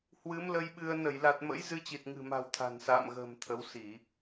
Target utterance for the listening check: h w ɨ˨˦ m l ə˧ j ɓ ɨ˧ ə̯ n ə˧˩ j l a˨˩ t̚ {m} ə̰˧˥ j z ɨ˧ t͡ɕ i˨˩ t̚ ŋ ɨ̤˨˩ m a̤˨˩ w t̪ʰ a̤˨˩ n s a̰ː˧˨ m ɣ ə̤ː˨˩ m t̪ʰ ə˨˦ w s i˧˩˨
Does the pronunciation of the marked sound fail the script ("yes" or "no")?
no